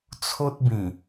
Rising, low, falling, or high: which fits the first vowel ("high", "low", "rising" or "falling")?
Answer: high